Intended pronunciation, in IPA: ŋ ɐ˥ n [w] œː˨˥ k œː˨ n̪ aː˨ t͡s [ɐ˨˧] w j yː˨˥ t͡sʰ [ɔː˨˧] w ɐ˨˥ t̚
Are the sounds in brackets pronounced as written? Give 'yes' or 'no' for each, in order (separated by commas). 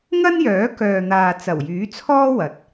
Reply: no, no, no